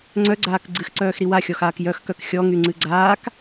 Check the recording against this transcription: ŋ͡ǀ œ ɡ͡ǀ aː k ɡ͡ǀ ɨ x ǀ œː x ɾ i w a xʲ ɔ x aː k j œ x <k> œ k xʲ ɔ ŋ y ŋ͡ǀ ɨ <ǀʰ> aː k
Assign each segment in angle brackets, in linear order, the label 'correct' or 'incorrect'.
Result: correct, incorrect

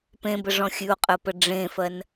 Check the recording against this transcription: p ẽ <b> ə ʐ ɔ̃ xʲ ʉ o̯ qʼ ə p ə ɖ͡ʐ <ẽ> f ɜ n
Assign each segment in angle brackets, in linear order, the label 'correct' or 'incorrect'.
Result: correct, correct

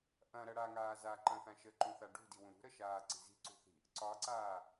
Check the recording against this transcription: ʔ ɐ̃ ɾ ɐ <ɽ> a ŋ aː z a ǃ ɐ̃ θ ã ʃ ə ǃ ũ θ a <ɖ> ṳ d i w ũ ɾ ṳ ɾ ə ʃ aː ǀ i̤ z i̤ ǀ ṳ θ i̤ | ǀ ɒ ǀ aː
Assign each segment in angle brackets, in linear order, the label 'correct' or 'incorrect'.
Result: correct, correct

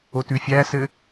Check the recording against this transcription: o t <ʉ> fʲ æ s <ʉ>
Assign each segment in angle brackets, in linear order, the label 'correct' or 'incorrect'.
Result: correct, incorrect

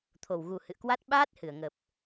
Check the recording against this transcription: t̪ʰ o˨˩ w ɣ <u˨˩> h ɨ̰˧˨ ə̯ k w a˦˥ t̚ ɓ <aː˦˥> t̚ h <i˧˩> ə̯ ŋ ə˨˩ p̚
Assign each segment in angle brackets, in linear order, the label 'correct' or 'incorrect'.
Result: correct, correct, incorrect

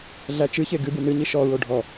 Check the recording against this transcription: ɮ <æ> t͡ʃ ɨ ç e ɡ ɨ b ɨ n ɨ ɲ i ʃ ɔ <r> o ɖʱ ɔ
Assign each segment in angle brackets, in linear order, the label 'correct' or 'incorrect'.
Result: correct, incorrect

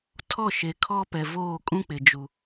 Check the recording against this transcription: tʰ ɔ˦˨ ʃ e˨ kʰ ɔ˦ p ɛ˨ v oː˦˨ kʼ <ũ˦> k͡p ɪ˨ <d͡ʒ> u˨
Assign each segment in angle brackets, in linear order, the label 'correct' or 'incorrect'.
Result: correct, correct

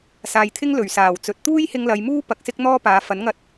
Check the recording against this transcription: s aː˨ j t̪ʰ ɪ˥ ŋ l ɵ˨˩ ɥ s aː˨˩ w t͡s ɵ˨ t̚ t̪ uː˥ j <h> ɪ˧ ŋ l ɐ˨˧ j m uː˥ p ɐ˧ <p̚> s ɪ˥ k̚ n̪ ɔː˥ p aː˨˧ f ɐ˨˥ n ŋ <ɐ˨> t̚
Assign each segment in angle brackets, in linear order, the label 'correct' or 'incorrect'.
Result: correct, incorrect, incorrect

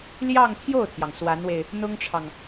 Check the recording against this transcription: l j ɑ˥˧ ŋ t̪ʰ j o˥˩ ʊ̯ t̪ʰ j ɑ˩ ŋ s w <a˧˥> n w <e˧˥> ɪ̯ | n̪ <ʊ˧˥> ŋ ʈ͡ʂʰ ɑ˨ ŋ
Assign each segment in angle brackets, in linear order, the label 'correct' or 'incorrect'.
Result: correct, incorrect, incorrect

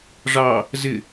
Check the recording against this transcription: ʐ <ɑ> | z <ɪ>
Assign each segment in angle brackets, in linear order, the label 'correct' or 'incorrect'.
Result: correct, correct

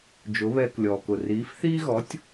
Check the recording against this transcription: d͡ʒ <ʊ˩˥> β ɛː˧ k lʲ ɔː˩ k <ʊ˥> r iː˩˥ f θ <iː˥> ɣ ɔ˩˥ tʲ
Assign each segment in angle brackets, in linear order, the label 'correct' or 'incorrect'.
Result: correct, incorrect, correct

